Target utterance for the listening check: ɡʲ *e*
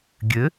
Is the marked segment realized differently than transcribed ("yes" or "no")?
yes